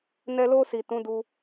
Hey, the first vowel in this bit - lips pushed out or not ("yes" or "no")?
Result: no